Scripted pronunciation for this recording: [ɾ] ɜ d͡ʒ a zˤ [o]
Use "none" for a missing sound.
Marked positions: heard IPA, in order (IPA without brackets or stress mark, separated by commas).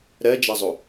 ɾ, o